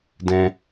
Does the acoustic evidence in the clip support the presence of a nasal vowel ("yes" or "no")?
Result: yes